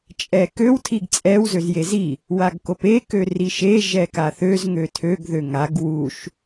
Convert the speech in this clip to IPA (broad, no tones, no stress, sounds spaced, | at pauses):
t͡ʃʼ ɛ k ø w tʰ i ɡ t͡sʼ ɛ w z ø z j e z i | w a ɡ k o p e k ø r i ʃ e ʒ ɛ k a θ ø z ŋ ø tʰ ø ɡ ð ø ŋ a ɡ w u ʃ